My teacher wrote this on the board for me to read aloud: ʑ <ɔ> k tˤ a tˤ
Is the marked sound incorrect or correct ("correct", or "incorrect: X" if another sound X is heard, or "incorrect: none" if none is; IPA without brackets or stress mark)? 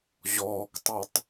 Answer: incorrect: ɔː